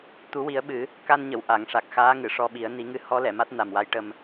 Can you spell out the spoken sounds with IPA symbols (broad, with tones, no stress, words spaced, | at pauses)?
t̪u˨˩˦wi˨˩˦ə̯ɓɨ˨˩˦ | ka˧nɲə˨˩˨w ʔa˨˩˨ŋʂa˨˩k̚ xaː˧˥ŋɨ˨˩˨ʂɔ˧ɓi˨˩˦ə̯ ni˨˩˦ŋɨ˧ hɔ˧˥ lɛ˨˩˨ma˦˥t̚ na˨˩mwa˧˥jʈə˧m